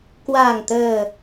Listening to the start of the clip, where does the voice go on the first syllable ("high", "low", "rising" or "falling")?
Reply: low